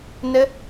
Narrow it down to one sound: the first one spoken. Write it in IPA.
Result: n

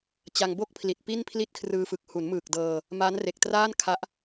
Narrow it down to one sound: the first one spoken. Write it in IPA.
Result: t͡ɕ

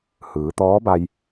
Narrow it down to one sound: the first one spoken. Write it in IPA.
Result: h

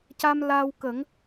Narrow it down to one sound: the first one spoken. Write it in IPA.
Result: c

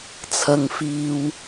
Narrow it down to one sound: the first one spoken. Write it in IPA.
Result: t͡sʰ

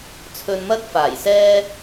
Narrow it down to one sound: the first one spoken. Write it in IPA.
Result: t͡sʰ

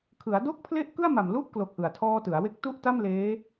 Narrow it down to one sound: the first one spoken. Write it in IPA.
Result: kʰ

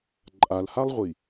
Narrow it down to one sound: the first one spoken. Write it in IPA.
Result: ǃʼ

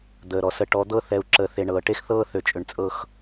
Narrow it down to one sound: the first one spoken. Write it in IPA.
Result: d̪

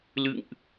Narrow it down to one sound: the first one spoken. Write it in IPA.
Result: l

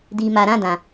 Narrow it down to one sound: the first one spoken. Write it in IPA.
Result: d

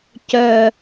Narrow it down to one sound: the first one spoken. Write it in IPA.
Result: c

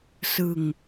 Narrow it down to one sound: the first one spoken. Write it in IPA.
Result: s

